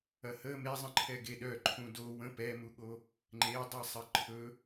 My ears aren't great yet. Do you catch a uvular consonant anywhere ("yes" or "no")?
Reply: no